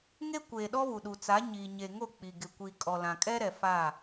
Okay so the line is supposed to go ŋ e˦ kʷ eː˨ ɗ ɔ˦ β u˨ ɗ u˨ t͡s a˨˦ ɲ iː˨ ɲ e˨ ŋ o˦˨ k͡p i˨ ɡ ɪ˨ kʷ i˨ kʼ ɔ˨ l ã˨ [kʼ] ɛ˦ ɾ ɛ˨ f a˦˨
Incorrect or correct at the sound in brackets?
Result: correct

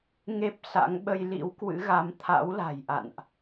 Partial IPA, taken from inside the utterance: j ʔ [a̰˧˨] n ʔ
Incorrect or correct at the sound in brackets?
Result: correct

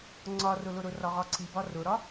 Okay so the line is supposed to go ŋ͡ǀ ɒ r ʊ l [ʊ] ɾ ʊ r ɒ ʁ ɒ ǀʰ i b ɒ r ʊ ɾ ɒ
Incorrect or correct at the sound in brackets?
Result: correct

